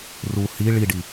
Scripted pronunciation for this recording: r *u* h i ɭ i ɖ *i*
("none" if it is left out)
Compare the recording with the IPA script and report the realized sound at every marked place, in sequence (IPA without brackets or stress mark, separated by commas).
u, i